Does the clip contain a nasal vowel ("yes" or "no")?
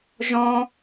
yes